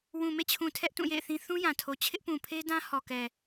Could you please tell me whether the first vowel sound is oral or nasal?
nasal